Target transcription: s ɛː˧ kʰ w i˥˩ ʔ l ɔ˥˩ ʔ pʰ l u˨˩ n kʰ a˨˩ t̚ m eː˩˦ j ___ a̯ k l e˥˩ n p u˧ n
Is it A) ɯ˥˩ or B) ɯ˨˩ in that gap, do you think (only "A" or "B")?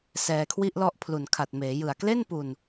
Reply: B